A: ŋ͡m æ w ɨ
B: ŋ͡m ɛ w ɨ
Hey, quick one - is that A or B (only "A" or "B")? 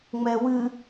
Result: B